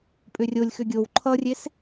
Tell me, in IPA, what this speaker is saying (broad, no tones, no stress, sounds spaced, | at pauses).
pʼ ʏ rʲ o lʲ x ʏ ɡʲ o w ǃʰ ʌ rʲ e s